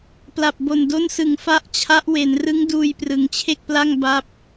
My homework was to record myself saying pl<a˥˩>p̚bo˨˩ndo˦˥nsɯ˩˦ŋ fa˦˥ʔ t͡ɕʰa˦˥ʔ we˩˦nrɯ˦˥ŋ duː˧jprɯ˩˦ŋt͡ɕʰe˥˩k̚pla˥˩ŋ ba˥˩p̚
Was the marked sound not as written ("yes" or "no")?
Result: yes